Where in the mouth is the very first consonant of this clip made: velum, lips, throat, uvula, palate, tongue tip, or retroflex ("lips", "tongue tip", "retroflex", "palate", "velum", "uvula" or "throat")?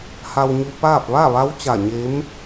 throat